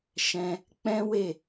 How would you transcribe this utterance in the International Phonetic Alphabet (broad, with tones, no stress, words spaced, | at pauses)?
ʃɛ̃˧ | k͡pɛ̃˦we˦˨